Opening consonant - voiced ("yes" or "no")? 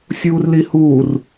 no